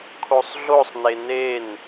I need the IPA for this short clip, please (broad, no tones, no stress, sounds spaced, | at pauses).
kʰ o sˤ ɮ o sˤ n e n e n